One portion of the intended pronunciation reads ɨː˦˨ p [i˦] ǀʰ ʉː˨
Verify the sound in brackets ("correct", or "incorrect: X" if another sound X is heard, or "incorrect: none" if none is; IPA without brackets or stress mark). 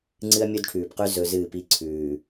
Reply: correct